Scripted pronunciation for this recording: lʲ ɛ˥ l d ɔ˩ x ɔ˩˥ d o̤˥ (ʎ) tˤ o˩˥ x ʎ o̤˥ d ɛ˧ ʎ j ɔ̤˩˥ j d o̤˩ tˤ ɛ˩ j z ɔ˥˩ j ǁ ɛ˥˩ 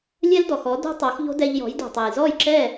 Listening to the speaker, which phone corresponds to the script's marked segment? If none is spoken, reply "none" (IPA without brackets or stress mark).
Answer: none